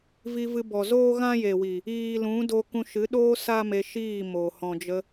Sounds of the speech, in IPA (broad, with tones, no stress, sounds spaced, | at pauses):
v i˧ v ɨ˧ b ɔ˨ z oː˦ ɣ ã˦ j e˨ w i˨ | iː˨ l ũ˨˦ d o˧ k ũ˧ ʃ ɨ˨˦ ɗ oː˦ s a˦ m e˧ ʃ iː˦˨ m o˨ h ɔ̃˨ d͡ʒ ə˧